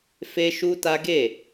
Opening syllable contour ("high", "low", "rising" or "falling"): high